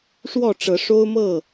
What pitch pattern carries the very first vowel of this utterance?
falling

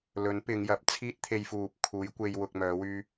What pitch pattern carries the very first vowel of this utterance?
rising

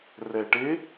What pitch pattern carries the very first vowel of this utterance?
low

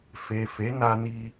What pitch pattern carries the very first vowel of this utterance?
low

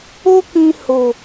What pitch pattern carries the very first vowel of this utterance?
high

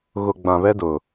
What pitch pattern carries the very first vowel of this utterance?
low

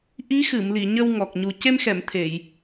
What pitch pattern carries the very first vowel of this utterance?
rising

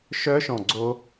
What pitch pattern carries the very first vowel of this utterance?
high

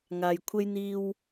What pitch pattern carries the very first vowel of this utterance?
low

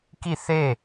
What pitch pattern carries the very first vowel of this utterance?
falling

